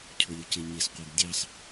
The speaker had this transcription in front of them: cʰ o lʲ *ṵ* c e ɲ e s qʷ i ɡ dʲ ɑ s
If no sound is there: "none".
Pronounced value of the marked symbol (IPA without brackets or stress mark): u